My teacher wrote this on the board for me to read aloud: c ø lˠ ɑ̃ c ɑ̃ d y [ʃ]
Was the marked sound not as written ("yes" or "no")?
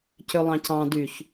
yes